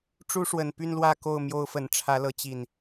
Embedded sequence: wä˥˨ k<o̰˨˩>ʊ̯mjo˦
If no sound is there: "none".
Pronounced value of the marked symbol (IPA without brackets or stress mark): o˥˨